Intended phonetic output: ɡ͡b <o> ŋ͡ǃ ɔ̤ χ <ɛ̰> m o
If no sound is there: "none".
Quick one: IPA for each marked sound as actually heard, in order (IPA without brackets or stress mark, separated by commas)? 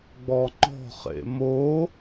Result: ɔ, ḛ